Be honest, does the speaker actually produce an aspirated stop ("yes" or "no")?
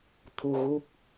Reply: yes